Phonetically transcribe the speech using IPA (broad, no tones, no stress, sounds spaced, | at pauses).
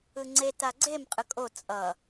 ɯ ŋ͡ǀ e t a ɡ͡ǀ e m qʼ ɯ kʼ o t͡sʼ ʌ